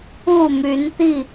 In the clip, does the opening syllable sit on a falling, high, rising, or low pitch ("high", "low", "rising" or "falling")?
falling